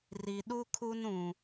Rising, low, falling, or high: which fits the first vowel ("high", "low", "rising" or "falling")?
low